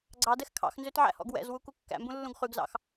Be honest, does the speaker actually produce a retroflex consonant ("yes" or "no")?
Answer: no